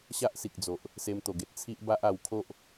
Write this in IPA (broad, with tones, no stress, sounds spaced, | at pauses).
ɕ a˦ ʔ s i˨ k̚ d͡z o˨ ʔ | s e˧ m t̪ o˨˩ ɡ e˨ t̚ t͡sʰ i˦ ʔ b a˦ ʔ a˧ w kʰ o˦ ʔ